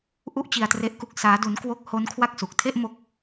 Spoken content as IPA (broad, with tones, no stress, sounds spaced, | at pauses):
ʔ u˥˩ ʔ t͡ɕ i˧ a̯ t r e˦˥ ʔ k u˦˥ k̚ s aː˦˥ d u˦˥ n k w o˥˩ k̚ h o˦˥ n kʰ w a˦˥ k̚ s u˨˩ k̚ tʰ e˥˩ ʔ m o˦˥ k̚